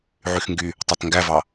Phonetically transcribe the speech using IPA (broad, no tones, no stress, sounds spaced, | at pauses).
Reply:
ʕ y x ŋ ɡ y | tˤ ɑ t ŋ ɡ æ v ɑ